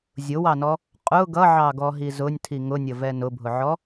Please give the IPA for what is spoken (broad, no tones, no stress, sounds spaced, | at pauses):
zʲ ʊ w ɑ n ɔ | qʼ ʊ ɡ ʌ ʕ ɑ ɡ ɔ ɦ i z ʊ nʲ tʰ i ŋ ʊ nʲ ə v ɛ n ʊ bʱ ʊ ʕ ɔ